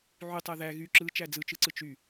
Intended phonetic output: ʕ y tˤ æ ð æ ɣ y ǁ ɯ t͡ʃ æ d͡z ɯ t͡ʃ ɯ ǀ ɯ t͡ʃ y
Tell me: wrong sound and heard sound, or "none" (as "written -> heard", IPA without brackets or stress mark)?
none